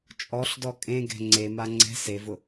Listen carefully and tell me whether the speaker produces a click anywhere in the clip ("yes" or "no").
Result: yes